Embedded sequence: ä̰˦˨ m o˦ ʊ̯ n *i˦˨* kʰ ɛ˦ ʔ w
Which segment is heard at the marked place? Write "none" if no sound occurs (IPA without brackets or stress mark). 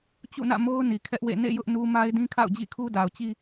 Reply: i˨